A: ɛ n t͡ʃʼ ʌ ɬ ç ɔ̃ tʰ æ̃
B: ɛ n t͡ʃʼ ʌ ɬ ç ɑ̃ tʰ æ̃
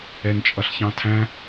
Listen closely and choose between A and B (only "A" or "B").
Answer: B